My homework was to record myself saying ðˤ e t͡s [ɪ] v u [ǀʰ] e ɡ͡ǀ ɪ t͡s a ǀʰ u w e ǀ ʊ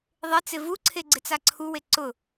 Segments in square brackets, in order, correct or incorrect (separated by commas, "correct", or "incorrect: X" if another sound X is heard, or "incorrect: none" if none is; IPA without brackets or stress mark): correct, correct